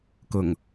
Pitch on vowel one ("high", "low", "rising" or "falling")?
low